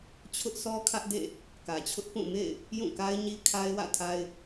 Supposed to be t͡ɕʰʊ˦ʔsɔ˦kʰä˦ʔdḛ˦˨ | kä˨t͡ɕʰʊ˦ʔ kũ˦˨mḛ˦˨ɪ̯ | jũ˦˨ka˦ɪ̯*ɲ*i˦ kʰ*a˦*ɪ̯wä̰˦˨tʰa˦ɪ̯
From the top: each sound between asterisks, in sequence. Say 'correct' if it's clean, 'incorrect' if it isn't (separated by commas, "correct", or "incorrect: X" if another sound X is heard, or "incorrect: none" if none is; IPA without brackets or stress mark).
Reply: correct, correct